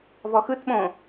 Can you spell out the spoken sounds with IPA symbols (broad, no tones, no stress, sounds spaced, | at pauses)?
v ɔ x ɯ t ɓ õ